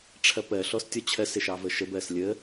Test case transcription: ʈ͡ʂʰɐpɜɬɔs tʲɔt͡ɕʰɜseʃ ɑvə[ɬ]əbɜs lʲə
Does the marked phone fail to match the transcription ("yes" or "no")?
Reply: yes